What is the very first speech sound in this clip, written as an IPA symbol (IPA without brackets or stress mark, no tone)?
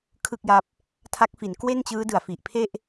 kʰ